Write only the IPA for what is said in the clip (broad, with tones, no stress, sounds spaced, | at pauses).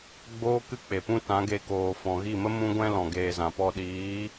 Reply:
ɡ͡b oː˦ k ɨ˦ k͡p e˨ p ũ˦ t ã˨˦ ɡ e˧ k oː˨ f ɔ̃˨ ɣ i˦˨ m ə˦ m ũ˦ ɡʷ ɛ̃˦ l ɔ̃˨ ɡ eː˧ z ã˨ p ɔ˧ ɗ iː˨˦